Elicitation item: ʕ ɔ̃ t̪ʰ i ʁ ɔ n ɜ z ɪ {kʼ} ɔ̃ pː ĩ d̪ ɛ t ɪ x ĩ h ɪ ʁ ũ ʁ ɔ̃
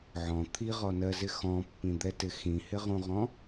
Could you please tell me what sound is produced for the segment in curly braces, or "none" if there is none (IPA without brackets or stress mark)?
x